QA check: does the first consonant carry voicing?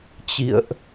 no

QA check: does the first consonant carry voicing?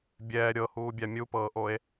yes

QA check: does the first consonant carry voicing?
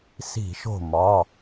no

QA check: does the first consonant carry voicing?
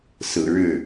no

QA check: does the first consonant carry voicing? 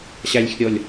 no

